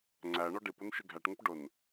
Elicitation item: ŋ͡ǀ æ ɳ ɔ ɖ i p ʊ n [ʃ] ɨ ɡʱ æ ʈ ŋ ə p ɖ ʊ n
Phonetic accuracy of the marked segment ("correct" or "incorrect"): correct